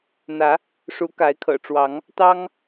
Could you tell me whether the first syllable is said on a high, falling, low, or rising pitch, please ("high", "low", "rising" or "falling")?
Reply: rising